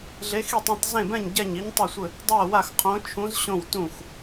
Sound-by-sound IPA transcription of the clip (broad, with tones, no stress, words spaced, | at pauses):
ɮe˧˥x i˥˨tˤ ũ˥˨tˤzẽ˥˨bɛ̃˥˨ɲ ɟɛ˥˨ɲi˧˥ɲtˤɘ˥˨sʷɘ˥˨ | dˤɛ˥˨wa˥˨x qʰõ˧˥t͡ʃʰũ˧˥z ɕõ˥˨wtũ˥˨x